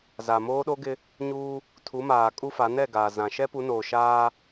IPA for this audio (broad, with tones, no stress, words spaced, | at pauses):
za˨moː˦ɗo˦ɡɪ˦ | ɲuː˦ | tʰu˨˦maː˨kʼu˦fa˨˦ nɛ˦˨ɡaː˨ zã˨ ʃɛ˦pu˨˦noː˨ʃaː˦